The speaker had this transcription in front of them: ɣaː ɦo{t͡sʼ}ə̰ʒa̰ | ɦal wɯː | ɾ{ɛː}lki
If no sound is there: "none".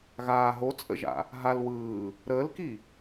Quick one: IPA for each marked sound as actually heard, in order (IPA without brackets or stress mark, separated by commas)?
t͡sʼ, əː